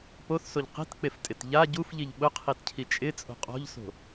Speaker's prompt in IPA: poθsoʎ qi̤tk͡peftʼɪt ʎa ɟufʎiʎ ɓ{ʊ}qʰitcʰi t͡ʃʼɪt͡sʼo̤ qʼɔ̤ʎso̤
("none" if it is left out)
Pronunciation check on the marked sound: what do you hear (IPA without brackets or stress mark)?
ʊ